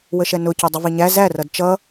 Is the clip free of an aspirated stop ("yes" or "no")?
yes